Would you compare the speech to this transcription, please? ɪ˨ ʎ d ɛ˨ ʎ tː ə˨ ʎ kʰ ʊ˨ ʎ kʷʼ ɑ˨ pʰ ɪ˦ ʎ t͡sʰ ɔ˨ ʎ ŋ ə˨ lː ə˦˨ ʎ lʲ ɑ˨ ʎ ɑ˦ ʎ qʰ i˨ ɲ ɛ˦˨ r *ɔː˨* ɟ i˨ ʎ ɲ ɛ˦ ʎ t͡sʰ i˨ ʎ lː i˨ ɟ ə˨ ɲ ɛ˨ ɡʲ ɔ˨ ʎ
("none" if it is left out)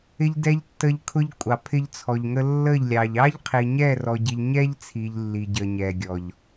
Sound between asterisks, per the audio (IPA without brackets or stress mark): ɔ˨